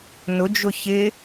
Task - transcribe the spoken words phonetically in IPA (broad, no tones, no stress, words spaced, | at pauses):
nʊd͡ʒʊ çɪ